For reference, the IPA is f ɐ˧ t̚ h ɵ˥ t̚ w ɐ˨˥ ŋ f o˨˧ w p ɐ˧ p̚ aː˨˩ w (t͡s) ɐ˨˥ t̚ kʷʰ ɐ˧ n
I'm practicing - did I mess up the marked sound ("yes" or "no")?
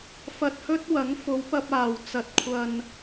no